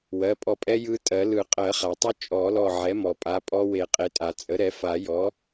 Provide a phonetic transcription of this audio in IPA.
wɜ˩˧˩pʼɔ˧˩pʼɛ˦˥ jɯ˦˥tʼɜ˨˩˦ lɯ˨˩˦qʼɜ˨˩˦χa˩tˤʏ˦˥ t͡ʃʼɔ˨˩˦lɔ˧˩ ʕɛ˩˥mɔ˩pʼa˩˧˩ pʼɔ˦˥ we˨˩˦qʼe˩˥tʼa˩ t͡sʼə˩˥ɾɛ˩˥fa˨˩˦jɔ˩˥

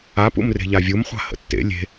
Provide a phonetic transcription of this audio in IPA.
apṵmre̤ʎa vʲumχʷa̤ hə̰tːḛ lʲe̤

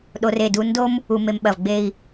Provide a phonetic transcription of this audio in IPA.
ɗo˧r e˧˩du˧ndo˥m | u˧me˧mɓɐ˧˩v ɡ͡be˥˧i̯

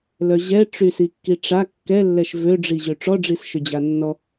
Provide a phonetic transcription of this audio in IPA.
lœʑɛ ʈ͡ʂysikːiʈ͡ʂa kːɛlːɛʃ vøɖ͡ʐiʑø ʈ͡ʂɔɖ͡ʐis ʃød͡ʑanːɔ

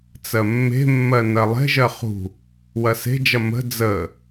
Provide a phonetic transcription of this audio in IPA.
t͡sɜmːe̤mːɜ nɜlˠe̤ʒɜ χṳ | wɐse̤d͡ʒɐ mə̤ d͡zə

